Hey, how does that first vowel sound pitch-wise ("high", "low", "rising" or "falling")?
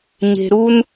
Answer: low